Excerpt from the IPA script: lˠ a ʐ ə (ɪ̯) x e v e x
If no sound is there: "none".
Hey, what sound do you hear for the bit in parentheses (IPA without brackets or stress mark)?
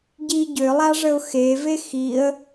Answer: ʊ̯